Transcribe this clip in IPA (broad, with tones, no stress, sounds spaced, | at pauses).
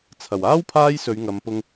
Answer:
t͡sʰ ɐ˨˩ w aː˥ w pʰ aː˥ j s ɵ˨˧ ɥ ŋ ɐ˨˧ m p ʊ˧ ŋ